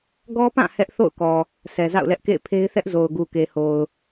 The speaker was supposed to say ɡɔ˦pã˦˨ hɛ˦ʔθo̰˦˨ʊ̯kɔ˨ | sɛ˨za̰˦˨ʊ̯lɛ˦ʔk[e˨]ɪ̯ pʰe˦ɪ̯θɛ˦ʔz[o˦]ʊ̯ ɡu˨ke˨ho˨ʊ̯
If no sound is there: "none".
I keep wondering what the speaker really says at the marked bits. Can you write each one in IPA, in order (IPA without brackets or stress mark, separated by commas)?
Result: ḛ˦˨, o˨